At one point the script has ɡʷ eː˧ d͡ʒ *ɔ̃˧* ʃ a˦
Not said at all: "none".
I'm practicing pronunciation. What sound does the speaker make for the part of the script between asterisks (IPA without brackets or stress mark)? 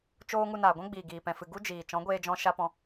ɔ̃˧